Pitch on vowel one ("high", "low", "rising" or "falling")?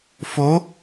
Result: rising